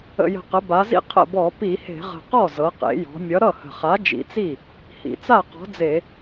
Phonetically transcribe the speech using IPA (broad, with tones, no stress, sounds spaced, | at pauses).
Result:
ə̰˨˩ j ə̤˨˩ q ə˩˧ b a˩˧ z ḭ˥˩ qʰ ə̰˥˩ b ɔ˧˩˧ p i˧˩˧ h e̤˧˩˧ ʁ ə̤˨˩ q ɔ˥˩ z ɤ˩˧ q ḛ˩˧ j ɔ̤˩˧ mʲ ʌ˨˥ ɾ ʌ˥˩ h ə̤˨˩ χ a˨˥ d͡ʒ ḭ˨˥ t͡s i˥˩ | h ḭ˩˧ t͡s a˥˩ q ɔ̤˨˥ d͡z e˧˩˧